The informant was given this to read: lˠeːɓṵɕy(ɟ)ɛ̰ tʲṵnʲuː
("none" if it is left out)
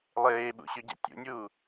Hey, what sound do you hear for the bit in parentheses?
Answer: ɟ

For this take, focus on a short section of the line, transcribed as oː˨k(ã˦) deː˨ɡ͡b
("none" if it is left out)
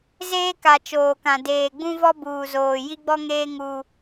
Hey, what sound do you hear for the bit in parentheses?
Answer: ã˨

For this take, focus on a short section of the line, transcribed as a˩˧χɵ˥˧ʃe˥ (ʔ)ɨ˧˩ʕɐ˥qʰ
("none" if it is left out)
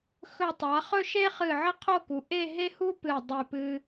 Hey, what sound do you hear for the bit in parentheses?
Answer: χ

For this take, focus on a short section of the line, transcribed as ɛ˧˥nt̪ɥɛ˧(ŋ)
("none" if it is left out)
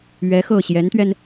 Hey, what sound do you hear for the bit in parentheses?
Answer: n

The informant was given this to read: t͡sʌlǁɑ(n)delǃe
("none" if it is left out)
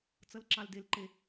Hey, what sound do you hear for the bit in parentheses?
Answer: l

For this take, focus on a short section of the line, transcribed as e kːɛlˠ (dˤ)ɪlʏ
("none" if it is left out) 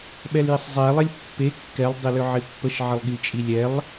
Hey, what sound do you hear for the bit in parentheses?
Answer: dˤ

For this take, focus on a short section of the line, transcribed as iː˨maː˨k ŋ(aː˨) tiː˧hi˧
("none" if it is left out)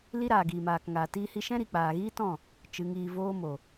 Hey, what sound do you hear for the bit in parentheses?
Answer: aː˨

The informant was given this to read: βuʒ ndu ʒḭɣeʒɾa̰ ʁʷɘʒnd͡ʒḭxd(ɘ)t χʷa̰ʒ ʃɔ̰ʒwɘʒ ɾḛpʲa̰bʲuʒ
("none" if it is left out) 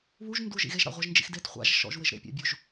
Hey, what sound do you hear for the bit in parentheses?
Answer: e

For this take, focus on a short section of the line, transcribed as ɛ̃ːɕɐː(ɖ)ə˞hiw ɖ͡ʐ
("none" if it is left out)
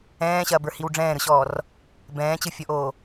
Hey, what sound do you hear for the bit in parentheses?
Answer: b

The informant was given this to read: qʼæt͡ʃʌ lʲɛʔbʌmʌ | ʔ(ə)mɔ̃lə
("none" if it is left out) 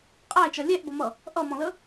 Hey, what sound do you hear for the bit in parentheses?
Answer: ʌ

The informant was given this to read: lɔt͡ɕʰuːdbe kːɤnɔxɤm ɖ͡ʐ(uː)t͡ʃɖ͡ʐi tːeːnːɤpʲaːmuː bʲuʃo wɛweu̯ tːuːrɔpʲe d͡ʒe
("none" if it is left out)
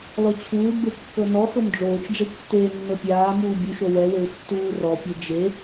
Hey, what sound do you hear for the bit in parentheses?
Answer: oː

